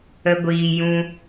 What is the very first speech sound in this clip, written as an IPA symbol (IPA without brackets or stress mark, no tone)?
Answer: ə